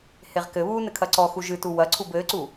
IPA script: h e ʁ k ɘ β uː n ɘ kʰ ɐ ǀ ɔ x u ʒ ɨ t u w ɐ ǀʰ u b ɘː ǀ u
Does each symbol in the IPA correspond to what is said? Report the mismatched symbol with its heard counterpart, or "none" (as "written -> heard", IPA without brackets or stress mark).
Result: none